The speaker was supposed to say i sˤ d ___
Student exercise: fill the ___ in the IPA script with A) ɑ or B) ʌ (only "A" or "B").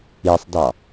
A